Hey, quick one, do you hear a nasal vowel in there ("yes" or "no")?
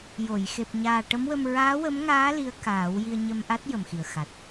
no